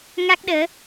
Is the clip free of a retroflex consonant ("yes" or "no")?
yes